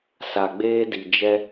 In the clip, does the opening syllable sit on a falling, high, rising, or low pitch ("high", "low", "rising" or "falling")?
low